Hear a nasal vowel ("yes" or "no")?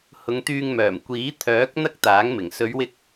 no